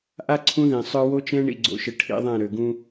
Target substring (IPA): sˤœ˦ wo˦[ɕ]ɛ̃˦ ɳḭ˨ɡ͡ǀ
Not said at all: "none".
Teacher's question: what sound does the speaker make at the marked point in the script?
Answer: t͡ʃ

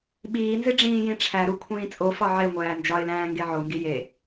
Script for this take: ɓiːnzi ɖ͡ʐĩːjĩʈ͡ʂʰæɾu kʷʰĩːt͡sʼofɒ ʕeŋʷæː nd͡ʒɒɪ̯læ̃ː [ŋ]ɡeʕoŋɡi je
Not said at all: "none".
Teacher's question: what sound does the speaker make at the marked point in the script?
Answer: ŋ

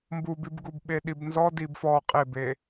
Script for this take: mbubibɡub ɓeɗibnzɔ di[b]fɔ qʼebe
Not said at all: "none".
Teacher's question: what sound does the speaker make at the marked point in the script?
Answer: b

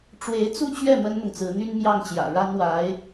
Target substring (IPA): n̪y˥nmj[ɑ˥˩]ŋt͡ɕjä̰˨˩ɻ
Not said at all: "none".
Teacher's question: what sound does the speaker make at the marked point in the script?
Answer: ɑ˥˩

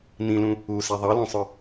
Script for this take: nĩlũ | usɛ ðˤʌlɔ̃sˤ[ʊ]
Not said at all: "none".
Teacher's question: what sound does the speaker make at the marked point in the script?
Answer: ʊ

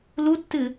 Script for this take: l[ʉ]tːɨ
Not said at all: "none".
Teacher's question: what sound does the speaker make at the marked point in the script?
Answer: u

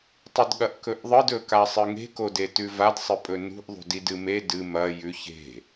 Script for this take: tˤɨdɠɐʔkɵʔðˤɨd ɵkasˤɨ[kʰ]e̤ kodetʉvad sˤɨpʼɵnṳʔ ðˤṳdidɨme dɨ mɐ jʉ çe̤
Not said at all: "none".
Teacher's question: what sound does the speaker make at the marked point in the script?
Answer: ŋ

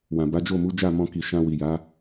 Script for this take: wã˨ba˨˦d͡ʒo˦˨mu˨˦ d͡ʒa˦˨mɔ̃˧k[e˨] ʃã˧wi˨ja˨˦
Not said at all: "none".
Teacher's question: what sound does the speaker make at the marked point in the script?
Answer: i˨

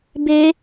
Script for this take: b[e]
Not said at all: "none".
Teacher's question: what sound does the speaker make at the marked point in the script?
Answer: e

